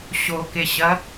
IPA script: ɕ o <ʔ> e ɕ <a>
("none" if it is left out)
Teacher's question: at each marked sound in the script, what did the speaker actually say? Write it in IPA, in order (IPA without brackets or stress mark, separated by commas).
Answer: k, ɐ